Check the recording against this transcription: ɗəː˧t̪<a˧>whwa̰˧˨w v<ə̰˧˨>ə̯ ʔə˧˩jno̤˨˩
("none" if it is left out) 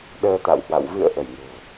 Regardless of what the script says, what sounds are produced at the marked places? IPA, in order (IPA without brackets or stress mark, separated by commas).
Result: a̰˧˨, ɨ̰˧˨